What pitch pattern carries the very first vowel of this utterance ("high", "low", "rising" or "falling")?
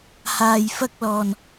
low